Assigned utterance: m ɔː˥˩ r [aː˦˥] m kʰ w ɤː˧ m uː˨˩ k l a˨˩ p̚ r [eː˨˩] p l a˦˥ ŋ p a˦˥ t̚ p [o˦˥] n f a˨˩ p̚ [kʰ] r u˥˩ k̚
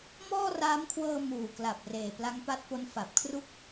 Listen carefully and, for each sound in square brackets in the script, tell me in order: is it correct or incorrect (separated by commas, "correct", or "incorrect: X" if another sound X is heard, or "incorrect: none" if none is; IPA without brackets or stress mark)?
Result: correct, correct, correct, correct